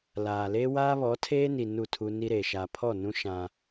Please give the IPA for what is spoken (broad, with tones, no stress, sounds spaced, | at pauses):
l aː˨ l e˦ w aː˦ β ɔ˨˦ tʰ eː˦ n i˨ n u˦˨ tʰ u˦ n i˦ ɾ eː˨ ʃ a˨ pʰ ɔ˦˨ n ũ˦ ʃ ã˦